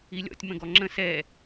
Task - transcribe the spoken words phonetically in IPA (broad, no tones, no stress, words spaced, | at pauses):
ilʲɔ̰tʲ mə̃ɡɔŋ͡ǁə̃ sɛ